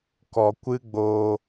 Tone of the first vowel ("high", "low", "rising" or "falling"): low